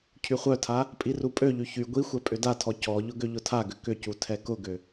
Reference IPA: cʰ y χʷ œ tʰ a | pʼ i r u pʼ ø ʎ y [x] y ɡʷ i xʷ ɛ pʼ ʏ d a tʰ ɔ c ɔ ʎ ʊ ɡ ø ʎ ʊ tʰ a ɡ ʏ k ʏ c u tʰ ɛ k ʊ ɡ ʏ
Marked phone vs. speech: incorrect: ç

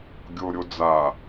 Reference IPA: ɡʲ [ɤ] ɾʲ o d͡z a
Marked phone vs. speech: incorrect: o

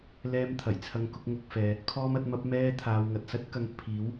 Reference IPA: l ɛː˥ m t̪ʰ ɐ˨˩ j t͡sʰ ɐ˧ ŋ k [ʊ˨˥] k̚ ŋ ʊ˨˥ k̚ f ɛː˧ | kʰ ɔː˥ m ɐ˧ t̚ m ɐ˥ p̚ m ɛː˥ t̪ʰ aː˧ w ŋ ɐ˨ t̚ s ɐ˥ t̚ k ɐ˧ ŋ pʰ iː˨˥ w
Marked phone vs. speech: incorrect: ʊ˧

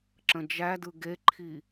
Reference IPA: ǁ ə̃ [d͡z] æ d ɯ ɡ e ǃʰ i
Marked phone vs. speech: incorrect: d͡ʒ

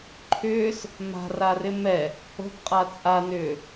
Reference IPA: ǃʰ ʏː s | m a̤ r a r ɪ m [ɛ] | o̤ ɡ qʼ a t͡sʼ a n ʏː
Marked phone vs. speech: correct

